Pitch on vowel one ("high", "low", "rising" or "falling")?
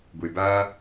low